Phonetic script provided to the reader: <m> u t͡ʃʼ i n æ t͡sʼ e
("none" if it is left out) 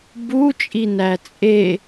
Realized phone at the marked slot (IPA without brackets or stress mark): b